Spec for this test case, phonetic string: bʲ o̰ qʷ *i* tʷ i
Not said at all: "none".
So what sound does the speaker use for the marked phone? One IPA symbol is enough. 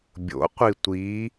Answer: i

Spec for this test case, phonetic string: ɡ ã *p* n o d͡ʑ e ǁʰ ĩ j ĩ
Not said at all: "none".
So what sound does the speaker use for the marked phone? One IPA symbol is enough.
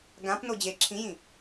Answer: p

